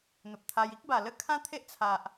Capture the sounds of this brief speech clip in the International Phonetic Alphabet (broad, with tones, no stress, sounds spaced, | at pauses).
n̪ ə˨ p̚ t̪ʰ a˧ j i˦ k̚ b a˨˩ l ə˥˧ kʰ ã˦ t̪ʰ e˦ ʔ t͡sʰ a˨ ʔ